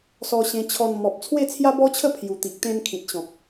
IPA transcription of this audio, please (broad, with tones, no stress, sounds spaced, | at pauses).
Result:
s ɔ˧ ɕ ẽ˧ t͡ɕʰ ɔ˧ n m ɔ˨ p̚ t͡sʰ w e˥˧ t͡sʰ j a˦ b ɔ˦ t͡ɕʰ ə˥˧ pʰ j u˨˩ t̪ i˨ k̚ t̪ ẽ˧ n kʰ ĩ˨ t̚ ɕ ɔ̃˨ k̚